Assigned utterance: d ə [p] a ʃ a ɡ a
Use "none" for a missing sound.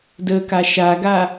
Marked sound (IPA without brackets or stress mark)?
k